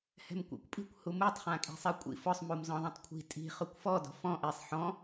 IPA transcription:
hɛ̤mkʷɛ̰kʷpʼi̤kʷ humutˤ χãkʼi̤sˤikʷʼḭ fʊsˤ mumzɔ̃ðˤãtˤkʷʰi̤ tʼi̤ χʊkʷfɔ dɔ̤fɔ̃ ʔisˤ ħɔ̃

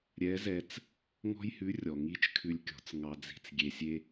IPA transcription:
ɾʲɛ˧˥zɛ˧t͡s | ŋɔ̤˥jhʉ˧˥ rʲɔ˩ŋi˧˥t͡ʃ kʰʉ˧lʲkʲɔ̤˩˧t͡s ŋɑ˧d͡zi̤˧t͡s ɡʲe˧sʲe˥

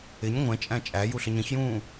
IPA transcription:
ɪɲ ŋʷɛ̃t͡ʃʼæ̃ t͡ʃʼæ juɬəɲə̃çjũː

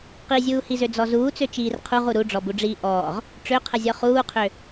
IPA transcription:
qizʲuːhizø d͡zɔzuːt͡sø t͡ʃiːrqʰuʁu ɾuɖ͡ʐɔbuɖ͡ʐiː ʔɔːʁ | ʈ͡ʂøqʰəzʲɔ χuːqʰø

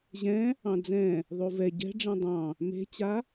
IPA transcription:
ʑɛ̃ | ɑ̃d͡zɛ̃ | ðˤovɛ ɟɛ̤ ɖ͡ʐɛ̃dˤɑ̃ | me̤t͡ɕa

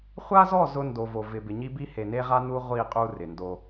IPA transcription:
χʷa˦zɔ˦˨ zʊ˦ndo˨vo˨ vɪ˨bɪ˨ɲi˦bi˦ he˨ne˦ʁa˦ nu˦ʁʷi˦˨ qʼu˦rɪ˨ndo˦

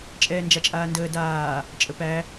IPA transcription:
t͡ʃʼɛːnd͡ʒat͡ʃʼaːndəː daː | t͡ʃʼəpæ

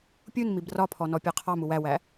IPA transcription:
pʲunmib rɒpʰɔnɔpʲɑ qʰɑmu wæwæ

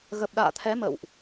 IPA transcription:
ɣə˨˩p̚ɗa̰ː˧˨t̪ʰɛ˨˦ mə̰˧˨wʔ

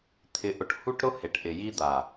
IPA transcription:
t̪ʰɪ˨ʔʊ˨ʈhu˦ʈɾʊ˦ he˨ʈʔɪ˨ji˦d̪a˨

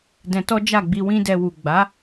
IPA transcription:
dɛ̃˧tɔ˦d͡ʒa˦˨ɡ͡bi˧ wĩ˦dɛ˧wu˨ ɡ͡ba˨˦

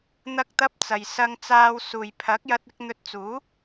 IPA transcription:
n̪ɐ˧k̚t̪ɐ˧p̚ t͡sɐ˨jsɐ˧ŋt͡saː˧w suː˨jpʰɐ˨˥k̚jɐ˧t̚ɪ˧k̚ n̪ɵ˧t̚t͡suː˨˥

